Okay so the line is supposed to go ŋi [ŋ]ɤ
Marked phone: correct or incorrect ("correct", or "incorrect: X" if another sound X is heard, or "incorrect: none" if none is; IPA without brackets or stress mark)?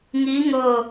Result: correct